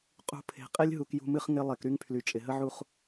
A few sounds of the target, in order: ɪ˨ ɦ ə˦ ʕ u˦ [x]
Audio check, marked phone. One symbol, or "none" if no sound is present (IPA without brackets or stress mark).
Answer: χ